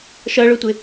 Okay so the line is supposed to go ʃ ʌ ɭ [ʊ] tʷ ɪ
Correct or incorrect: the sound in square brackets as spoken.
correct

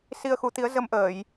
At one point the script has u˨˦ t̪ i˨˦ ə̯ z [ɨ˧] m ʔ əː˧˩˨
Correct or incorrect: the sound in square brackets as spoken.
incorrect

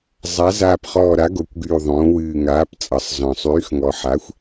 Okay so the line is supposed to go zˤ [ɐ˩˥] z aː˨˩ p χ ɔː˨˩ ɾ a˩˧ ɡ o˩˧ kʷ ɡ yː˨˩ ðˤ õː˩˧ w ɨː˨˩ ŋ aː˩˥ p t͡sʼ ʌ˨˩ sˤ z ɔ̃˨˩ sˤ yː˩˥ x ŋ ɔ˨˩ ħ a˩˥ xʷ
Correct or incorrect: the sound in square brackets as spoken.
incorrect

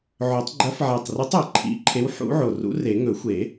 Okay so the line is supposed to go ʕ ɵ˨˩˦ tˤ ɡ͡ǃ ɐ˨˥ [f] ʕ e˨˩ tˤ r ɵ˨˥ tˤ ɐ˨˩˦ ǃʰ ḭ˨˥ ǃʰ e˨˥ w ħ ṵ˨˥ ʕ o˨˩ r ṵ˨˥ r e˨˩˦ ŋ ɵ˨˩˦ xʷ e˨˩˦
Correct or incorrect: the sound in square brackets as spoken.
correct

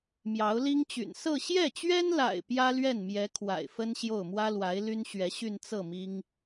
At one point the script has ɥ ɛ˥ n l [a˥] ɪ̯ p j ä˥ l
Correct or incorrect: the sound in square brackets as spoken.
incorrect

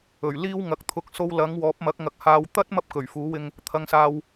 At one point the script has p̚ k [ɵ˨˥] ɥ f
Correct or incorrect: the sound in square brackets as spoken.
incorrect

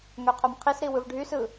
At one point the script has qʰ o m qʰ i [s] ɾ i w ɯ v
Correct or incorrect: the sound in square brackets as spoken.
correct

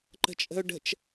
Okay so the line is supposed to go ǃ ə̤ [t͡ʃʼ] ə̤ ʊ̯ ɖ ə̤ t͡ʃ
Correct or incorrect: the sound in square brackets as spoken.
correct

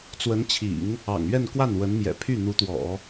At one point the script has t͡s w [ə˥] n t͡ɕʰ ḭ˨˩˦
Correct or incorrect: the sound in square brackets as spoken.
incorrect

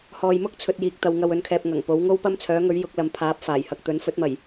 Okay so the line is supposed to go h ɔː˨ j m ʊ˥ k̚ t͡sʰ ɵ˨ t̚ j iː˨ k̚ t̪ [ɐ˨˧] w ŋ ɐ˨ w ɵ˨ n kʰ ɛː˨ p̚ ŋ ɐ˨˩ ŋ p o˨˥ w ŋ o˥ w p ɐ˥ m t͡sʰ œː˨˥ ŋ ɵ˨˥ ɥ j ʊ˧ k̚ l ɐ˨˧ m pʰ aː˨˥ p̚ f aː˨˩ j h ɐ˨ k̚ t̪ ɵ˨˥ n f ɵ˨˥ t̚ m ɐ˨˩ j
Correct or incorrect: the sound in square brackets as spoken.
correct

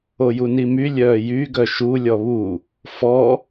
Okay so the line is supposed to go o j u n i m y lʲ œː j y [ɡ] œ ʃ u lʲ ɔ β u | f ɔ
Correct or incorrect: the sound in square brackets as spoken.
correct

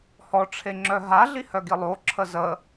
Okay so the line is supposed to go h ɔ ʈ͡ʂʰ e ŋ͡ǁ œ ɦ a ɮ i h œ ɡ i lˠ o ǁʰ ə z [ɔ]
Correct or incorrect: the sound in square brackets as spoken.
incorrect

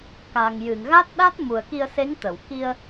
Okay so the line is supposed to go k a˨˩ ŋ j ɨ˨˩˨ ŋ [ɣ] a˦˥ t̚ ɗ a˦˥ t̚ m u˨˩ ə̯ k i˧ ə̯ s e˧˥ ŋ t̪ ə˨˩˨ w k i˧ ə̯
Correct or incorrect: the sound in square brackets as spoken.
correct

